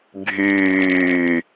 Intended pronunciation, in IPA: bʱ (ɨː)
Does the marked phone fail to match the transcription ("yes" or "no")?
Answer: yes